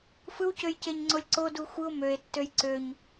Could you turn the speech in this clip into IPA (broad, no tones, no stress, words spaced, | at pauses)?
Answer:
fɯwcøjceɲŋ͡ǀolʲ ǀodu xʷɯo̯ møe̯tːøj ǀøɲ